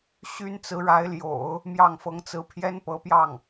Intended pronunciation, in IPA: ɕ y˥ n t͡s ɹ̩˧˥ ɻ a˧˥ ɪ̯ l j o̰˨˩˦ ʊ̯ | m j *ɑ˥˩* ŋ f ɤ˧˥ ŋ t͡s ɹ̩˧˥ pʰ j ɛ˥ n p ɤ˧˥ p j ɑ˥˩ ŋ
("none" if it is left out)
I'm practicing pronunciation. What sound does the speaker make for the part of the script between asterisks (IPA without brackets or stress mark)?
ɑ˥˩